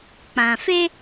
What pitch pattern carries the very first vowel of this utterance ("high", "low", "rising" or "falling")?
low